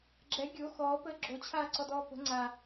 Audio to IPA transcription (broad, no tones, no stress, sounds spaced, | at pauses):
ɡ͡ǁ ɛ ɡʲ o x ɔː p əː ɡ͡ǁ o t͡ɕʰ aː ǀ ɔ d ɔː p ə̤ ŋ͡ǀ a